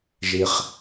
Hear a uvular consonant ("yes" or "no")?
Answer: yes